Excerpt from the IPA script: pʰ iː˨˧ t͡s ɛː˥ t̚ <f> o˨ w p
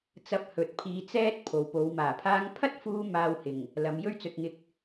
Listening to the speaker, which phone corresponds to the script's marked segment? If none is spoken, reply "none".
pʰ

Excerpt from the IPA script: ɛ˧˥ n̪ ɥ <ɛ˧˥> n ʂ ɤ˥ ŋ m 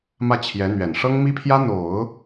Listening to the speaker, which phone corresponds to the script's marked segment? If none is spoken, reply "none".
ɛ˨˩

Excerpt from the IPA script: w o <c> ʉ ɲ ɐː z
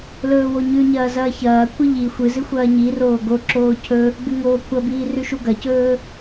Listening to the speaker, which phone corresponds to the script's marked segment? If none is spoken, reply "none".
ɲ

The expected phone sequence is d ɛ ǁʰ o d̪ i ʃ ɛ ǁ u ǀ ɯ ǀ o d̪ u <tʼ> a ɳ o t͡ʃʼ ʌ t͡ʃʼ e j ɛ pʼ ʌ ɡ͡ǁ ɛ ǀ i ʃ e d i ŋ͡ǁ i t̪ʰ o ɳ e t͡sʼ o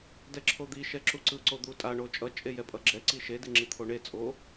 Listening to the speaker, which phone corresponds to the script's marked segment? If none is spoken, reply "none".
tʼ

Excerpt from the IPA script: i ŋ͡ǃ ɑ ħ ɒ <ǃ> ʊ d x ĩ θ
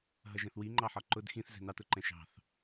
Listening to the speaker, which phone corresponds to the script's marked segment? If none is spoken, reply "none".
ǃ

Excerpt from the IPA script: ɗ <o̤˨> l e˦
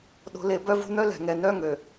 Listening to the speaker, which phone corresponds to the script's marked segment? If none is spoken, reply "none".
o̤˦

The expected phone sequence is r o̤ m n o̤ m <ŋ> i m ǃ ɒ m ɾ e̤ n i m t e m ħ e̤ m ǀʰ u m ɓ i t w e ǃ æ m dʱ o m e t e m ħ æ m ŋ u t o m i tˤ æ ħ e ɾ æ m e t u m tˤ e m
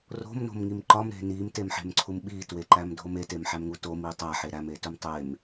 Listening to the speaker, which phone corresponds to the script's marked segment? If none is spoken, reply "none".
ŋ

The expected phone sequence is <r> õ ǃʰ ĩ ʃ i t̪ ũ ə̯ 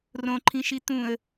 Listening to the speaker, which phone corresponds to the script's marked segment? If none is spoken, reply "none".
r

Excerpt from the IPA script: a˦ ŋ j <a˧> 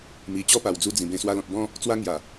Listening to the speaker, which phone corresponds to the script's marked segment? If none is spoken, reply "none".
a˨˩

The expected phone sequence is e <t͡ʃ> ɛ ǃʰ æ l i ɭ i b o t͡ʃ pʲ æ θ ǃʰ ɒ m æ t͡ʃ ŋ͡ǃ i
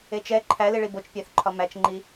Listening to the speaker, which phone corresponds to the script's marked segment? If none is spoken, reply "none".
t͡ʃ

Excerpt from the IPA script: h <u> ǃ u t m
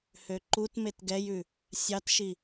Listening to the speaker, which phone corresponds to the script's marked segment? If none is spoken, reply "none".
ø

